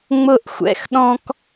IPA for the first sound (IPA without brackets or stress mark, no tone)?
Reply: ŋ͡m